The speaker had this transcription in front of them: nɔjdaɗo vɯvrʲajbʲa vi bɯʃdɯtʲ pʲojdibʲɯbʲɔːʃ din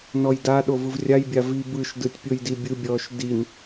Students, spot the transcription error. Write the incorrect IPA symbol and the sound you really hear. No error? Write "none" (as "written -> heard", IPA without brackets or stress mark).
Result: none